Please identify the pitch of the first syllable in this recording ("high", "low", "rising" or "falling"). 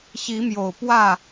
rising